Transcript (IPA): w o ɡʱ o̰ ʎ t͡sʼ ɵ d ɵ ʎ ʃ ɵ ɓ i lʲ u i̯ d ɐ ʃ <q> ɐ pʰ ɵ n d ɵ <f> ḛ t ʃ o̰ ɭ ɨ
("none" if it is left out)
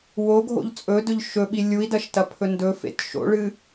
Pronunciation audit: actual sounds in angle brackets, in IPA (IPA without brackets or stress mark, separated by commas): t, f